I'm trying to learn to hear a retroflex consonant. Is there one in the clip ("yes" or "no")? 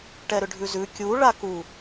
yes